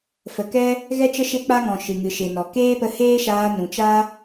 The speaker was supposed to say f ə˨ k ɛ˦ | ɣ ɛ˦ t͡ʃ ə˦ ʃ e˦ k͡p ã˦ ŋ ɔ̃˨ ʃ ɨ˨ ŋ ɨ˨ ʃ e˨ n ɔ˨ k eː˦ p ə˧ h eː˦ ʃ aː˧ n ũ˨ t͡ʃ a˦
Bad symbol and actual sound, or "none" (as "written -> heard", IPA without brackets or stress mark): ã˦ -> a˦